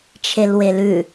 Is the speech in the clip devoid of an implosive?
yes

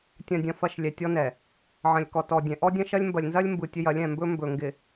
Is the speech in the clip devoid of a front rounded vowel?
yes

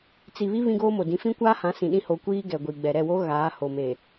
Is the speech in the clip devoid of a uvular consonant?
yes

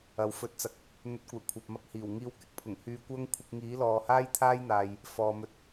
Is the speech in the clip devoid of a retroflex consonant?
yes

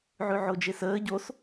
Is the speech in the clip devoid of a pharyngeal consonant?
no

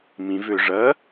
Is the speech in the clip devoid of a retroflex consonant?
no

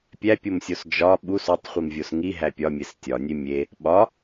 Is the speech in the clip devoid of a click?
yes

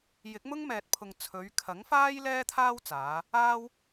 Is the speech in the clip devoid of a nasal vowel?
yes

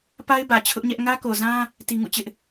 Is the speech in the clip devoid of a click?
yes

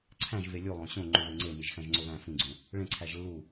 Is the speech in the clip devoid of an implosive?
yes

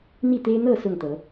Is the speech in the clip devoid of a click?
yes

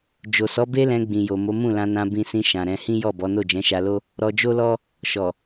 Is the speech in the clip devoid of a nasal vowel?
no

